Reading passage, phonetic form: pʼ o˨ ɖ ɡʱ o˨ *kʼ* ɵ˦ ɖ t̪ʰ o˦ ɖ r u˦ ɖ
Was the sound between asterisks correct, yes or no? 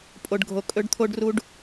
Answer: yes